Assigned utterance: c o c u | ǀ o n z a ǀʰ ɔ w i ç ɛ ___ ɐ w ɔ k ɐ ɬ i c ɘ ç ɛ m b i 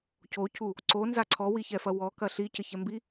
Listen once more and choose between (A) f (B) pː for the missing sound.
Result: A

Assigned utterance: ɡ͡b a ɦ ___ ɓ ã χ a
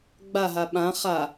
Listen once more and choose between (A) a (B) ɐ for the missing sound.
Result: A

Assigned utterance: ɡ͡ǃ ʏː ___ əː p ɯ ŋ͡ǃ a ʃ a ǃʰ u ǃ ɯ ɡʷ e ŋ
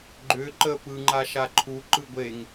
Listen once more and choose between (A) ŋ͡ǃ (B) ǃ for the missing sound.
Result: B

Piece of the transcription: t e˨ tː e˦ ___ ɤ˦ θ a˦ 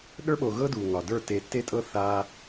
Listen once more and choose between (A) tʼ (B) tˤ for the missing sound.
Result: A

